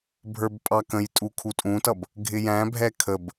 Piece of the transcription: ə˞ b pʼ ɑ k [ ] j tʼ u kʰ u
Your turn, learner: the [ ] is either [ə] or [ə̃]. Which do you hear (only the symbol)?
ə̃